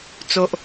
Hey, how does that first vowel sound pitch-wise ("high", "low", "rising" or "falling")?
low